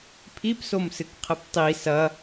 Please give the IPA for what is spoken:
pʰ i p s o m s ɨ k qʰ ɘ p tˤ i s ɐ

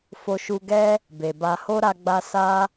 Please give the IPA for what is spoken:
f o˧ ʃ u˧ ɡ ɛ˦ | b e˨ b a˧ h o˦ ɾ a˧ ɡ͡b a˧ s a˦

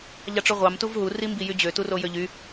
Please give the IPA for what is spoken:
ʎ ɑ ʈ͡ʂ ø ʁʷ ɑ m t u v ɦ u r i m b i j y d͡ʑ ø t u r o j ø ʎ y

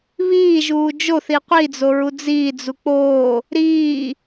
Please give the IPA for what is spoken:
β iː ʒ uː d͡ʒ o θ i qʷ i d͡z o ɹ u d͡z iː d͡z u k͡p oː | ɾ iː

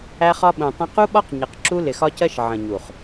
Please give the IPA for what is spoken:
æ˦ χ ɒ˦ ɓ ũ˨ tˤ ə̃˦ q u˦ ɓ ɒ˦ q ɲ ʌ˨ q ǁ u˦ l ɪ˨ x ɒ˦ c ɜ˦ ʃ ʕ ə̃˨ ɲ u˨ χ

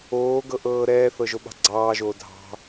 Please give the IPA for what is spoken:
oː ɡ ɤ ʔ ɤː ɾ ɛː θ ɤ ʒ o ɓ ɑ̤ ɡ͡ǀ ɑː ʒ oː dʱ ɑ̤

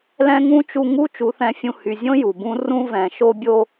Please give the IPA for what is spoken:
l ɛ̃˦ ŋ ũ˦ t͡ʃ u˧ ŋ u˦ t͡ʃ u˨˦ θ ɛ̃˧ fʲ ũ˧ h y˨ zʲ õ˦ j u˨ b ũ˦ r ũ˧ v ɛ̃˨ ʃ o˧ bʲ o˧

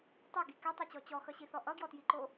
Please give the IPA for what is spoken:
tˤ ɛ ɡ i k ɛ tˤ o t͡ɕ ɔ t͡ɕ ɔ x ʌ ɕ i θ ɔ ʔ ʌ ɡ j ɔ t j i ǃ o

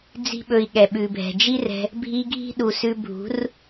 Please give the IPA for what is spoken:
d͡z i̤˧ ɓ ɵ˨ i̯ ɠ ɛ˨ ɓ ʉ˨ bʱ ɛ̤˨ d͡ʒ i˦ r ɛ̤˧ | bʱ i˧ ɡʱ i̤˦ ɗ u˨ s ʉ˧ bʱ ṳ˨˦ r

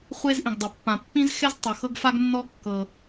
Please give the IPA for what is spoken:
χʷ e˧ z ʔ ĩ˩ ɡ dˤ o˩ pː ã˩ pː ĩ˧ z x ɛ˧ z tˤ ɤ˩ x ɤ˧ ɡ f a˧ ɡ nː ɔ˧ kː ɤ˩

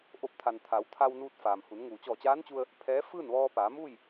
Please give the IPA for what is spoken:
ʔ o˧˩ p̚ t̪ʰ a˩ n t̪ʰ a˩˧ w t̪ʰ a˧ w n uː˧ t̚ f aː˩ m h u˩˧ n ŋ uː˩ t͡ɕ ɔː˧˩ t͡ɕ aː˧˥ n t͡ɕ u˧ ə̯ | pʰ ɛː˧˥ f ɯː˥˨ n ʋ ɔː˧ p aː˩˧ m uː˥˨ j

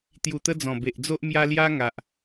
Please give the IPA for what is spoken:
t̪ j u˨˩ t̪ ə˧ d͡z ɔ̃˨˩ b e˨ ʔ d͡z o˦ ʔ m j a˧ l j a˦ ŋ a˨ ʔ

